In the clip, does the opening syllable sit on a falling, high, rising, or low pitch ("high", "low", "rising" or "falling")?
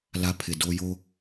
high